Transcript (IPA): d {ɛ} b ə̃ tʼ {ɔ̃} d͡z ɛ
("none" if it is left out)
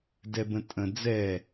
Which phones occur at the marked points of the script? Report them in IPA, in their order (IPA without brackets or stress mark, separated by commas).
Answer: ɛ, ə̃